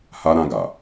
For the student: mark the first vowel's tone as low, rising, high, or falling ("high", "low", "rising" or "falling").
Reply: high